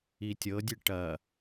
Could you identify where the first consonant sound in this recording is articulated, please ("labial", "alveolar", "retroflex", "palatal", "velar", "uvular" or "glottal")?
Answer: alveolar